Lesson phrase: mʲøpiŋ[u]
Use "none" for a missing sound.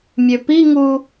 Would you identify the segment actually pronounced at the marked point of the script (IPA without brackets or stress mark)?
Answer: u